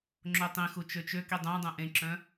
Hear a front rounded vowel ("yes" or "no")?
yes